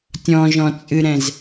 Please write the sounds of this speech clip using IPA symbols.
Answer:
tʲ ɔ̃ ʒ ɔ̃ t͡sʼ ɨ ɾ ɛ̃ z

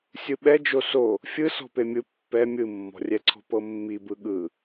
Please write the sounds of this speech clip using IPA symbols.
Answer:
sʲ ɯ ɓ ɛ d͡ʒ o s o | fʲ ɯ s ɔ̤ p e mʲ ɯ pː ɛ mʲ ɯ mː ɔ̤ rʲ ɛ ǀʰ ɔ̤ p ɤ mː i b ɯ ɠ ɯ

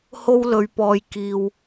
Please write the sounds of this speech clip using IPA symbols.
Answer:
h o˥ w l ɵ˧ ɥ p ɔː˧ j k iː˨ w

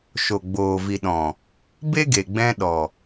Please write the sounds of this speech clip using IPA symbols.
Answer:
ʃ o˨ ɡ͡b oː˨ v i˨ ɗ ɔ̃˨ | b e˦ ɡ e˨ ɡ͡b ɛ̃˧ ɗ ɔ˨

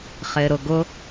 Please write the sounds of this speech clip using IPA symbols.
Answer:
χ ɪː ɾ ʊ ɡ ʊ

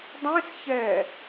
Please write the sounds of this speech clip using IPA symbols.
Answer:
dˤ ẽ s ç ɛ

